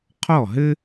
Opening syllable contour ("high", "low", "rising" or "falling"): falling